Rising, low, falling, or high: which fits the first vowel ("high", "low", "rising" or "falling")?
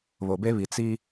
low